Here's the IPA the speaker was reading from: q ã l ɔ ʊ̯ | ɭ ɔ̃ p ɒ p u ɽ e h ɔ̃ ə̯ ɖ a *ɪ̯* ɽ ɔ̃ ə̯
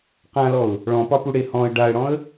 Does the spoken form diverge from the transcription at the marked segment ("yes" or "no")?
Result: yes